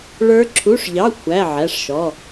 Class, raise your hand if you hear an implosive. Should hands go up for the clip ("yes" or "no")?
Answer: no